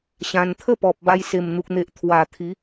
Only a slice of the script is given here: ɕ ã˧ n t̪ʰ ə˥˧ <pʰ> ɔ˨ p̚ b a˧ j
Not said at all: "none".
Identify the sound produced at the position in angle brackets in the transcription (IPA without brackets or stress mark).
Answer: p